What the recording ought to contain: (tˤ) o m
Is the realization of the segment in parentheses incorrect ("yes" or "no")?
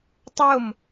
no